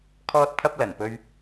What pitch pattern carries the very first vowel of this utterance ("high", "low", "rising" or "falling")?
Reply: high